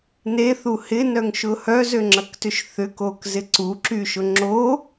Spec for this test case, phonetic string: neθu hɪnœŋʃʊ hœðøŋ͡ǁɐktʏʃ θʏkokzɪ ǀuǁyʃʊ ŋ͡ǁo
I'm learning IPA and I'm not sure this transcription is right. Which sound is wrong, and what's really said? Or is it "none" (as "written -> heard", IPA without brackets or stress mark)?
ð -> z